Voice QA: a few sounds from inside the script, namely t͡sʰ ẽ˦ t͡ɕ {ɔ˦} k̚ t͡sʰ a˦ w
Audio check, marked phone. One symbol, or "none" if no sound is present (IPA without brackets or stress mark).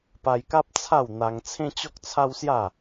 ɔ˦